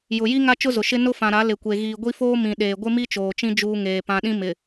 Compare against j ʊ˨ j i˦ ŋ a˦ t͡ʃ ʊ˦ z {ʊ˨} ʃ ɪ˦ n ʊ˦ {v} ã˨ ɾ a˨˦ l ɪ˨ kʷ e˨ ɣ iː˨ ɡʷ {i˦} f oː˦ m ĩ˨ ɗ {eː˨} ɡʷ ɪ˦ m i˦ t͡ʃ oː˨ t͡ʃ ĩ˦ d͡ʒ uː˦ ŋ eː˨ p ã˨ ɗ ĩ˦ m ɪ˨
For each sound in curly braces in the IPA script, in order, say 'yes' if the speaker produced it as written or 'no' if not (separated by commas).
yes, no, yes, yes